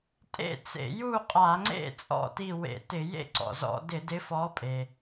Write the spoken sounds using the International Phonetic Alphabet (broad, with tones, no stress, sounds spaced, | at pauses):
tʼ ḛ˥˨ t͡s ḛ˧˩˧ j u˥˨ qʼ a˧˩˧ ŋ͡ǀ ḛ˥˨ t͡sʼ ɔ̰˥˨ t i˥˨ w ḛ˧˩˧ t ɪ˧˩˧ j ḛ˥˨ ǀ ɔ̰˩ z ɔ̰˧˩˧ d ɪ˧˩˧ d ɪ˨˥ f ɔ˨˥ pʼ e˩